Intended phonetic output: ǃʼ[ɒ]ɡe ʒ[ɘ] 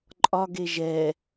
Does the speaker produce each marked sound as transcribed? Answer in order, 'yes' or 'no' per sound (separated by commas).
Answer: yes, no